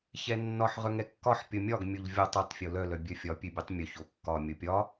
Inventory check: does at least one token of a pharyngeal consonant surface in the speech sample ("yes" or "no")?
yes